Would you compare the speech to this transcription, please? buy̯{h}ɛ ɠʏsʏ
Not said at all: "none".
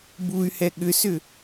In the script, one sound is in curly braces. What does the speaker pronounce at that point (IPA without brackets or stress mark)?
h